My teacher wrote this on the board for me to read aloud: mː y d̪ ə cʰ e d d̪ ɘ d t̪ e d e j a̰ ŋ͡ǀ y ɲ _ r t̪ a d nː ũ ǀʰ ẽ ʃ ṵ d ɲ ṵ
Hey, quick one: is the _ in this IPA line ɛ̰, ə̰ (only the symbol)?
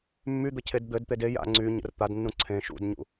ə̰